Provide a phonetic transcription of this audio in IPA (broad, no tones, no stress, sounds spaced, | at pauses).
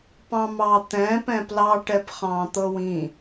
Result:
p ɑ̃ m ɑ t̪ ɛ̃ p ɛ̃ p l ɑ ʈ ɛ p χ ɑ̃ t̪ ɤ w ĩ